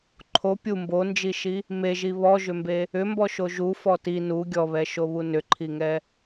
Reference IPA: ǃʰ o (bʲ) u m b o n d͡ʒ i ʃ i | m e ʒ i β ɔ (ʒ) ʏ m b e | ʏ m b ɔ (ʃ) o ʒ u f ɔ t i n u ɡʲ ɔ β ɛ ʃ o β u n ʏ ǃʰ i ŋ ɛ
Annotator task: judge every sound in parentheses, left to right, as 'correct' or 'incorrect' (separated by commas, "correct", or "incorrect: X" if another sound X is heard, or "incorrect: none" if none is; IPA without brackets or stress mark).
incorrect: pʲ, correct, correct